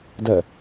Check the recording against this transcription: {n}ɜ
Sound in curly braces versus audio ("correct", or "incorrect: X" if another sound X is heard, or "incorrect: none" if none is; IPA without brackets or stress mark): incorrect: d